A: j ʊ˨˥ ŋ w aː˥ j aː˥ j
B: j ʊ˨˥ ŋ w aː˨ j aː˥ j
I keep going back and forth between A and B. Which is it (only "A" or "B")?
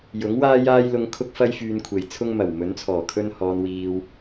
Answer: A